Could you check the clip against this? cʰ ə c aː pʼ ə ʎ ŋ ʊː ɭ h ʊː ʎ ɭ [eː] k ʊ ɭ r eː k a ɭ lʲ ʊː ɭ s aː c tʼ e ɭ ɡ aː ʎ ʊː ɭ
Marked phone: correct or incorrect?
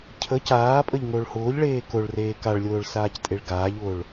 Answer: correct